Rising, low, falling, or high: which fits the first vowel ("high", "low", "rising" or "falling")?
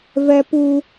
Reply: high